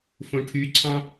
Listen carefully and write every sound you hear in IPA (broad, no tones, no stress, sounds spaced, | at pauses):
f õ ʈʰ y ǀʰ ɑ̃